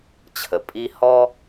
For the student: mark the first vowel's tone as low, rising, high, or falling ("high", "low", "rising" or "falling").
low